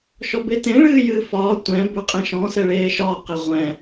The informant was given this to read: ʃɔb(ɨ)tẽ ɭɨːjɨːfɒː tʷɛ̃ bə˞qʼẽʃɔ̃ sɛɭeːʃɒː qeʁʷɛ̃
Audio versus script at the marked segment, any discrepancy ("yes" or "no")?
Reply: yes